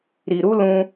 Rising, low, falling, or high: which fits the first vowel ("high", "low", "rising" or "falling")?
low